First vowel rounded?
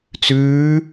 yes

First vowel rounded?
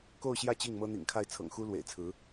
yes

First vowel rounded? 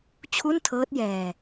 yes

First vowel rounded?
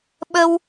no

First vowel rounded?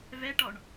no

